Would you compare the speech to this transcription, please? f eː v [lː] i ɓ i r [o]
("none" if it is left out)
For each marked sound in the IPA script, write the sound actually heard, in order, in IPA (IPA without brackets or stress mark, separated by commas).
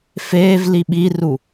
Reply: l, u